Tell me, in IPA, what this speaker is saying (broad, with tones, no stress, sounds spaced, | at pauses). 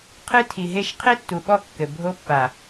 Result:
qʰ ɨ˦ tʰ i˨ ɦ e˦˨ ʃ qʰ e˦ tː u˨ ɓ ɔ˦˨ kː ɘ˨ bʱ o˦ pː a˨